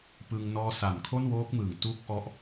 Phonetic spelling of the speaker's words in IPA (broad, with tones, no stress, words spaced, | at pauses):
pɯ˧ŋnɔː˦˥ sa˨˩nkʰo˥˩nwoː˦˥k̚mɯː˨˩ŋ tu˦˥k̚ ʔɔ˦˥ʔ